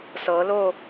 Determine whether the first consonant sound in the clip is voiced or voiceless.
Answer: voiceless